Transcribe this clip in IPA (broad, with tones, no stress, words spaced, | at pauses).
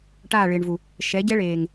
ʈaː˦˨ɭɪː˨ɳvu˨ | ʃɛ˨˦ɟɛ˦ɭeː˨ŋ